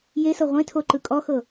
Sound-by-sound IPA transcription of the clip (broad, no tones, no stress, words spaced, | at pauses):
jesɤ ʁʷẽtʰoǃɯ kʼɔxɤ